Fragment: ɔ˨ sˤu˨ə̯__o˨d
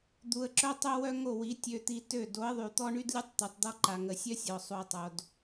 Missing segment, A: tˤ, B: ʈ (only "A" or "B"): A